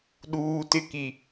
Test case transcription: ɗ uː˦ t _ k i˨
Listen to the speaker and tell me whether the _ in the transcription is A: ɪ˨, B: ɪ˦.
B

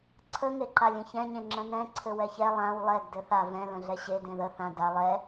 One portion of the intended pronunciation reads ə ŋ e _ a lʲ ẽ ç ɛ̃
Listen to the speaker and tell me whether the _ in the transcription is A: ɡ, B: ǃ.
B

